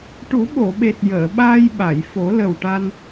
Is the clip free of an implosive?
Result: no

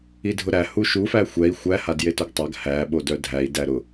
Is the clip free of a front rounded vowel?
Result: no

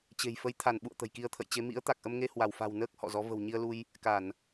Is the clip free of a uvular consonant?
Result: yes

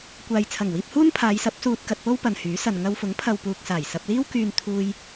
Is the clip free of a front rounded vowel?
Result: no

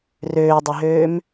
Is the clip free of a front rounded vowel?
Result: no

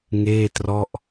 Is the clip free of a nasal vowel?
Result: yes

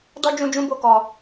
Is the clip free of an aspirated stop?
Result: yes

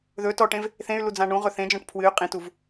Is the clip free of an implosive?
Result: yes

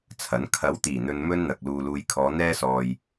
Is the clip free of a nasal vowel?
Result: yes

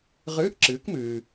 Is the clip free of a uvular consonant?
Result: no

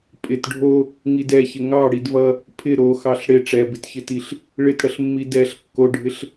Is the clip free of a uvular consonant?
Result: yes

